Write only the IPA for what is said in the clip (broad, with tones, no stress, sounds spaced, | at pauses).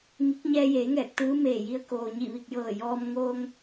ŋ i˧˥ k̚ ɲ ɛː˧ j eː˩˧ ŋ ɛː˧˩ k̚ t̪ ɯː˧˥ m eː˧˩ j i˧ ə̯ k oː˩ ɲ i˧˩ ʋ i˧˩ k̚ j ɤː˧˩ j ɔː˧ m ŋ oː˧ ŋ